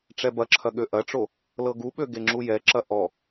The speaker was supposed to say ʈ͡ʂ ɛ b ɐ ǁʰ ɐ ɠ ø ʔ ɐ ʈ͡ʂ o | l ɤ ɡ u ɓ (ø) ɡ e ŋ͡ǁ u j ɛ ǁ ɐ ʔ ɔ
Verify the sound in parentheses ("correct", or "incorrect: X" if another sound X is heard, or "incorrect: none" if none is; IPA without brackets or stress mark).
correct